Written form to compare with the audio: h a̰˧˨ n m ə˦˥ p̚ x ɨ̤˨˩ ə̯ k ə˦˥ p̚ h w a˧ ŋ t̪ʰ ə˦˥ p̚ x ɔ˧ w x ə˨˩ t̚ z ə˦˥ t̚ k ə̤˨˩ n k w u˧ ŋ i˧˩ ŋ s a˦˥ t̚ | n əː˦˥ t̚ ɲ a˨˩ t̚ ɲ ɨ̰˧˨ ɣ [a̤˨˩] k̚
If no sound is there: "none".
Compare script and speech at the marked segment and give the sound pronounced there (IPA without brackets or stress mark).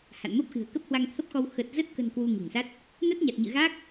a˦˥